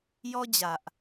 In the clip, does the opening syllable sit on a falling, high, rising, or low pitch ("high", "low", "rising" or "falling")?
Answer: high